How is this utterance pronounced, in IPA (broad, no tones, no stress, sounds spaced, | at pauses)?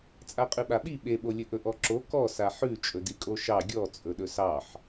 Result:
t͡sʼ a qʼ ʉ ɓ a ɓ i ɓ e ɓ o lʲ ɵ ʔ ɵ ʔ ɔ ǁ o k ɔ s a ħ ʉ t͡ʃʼ ɵ d i kʼ o ʃ ɑ ɡʲ ɔ t͡sʼ ɵ ɗ ɵ s ɑ ħ